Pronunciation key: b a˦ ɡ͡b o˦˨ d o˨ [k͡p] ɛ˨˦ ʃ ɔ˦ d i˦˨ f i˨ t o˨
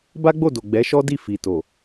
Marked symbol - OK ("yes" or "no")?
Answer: no